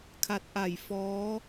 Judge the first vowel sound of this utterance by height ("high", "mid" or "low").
low